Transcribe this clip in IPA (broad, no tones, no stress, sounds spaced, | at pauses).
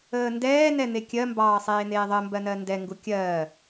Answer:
əː n d ɛː n ɛ n̪ e kʲ ɜ m b ɑː sˤ eː n̪ eː ðˤ ə m b ɜ n ɜ n d ɛ ŋ ɡ u kʲ ɜː